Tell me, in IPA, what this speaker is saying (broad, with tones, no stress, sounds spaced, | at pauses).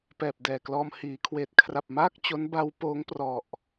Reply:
p ɛː˨˩ p̚ d ɛː˨˩ k l ɔː˧ m h iː˩˦ kʰ w eː˨˩ t̚ kʰ r a˨˩ p̚ m aː˥˩ k̚ t͡ɕ o˦˥ n b a˦˥ w p oː˦˥ ŋ p r ɔ˨˩ ʔ